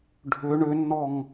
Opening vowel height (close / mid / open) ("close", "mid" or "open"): close